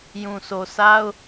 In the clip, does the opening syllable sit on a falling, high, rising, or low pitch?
low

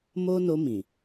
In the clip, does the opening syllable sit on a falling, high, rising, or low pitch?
high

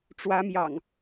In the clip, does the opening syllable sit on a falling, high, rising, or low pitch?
rising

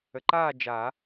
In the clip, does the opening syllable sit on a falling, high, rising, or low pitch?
low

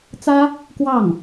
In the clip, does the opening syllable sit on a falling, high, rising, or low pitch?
high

